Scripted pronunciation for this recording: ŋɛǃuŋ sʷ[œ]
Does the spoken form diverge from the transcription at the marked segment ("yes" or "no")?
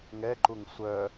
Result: no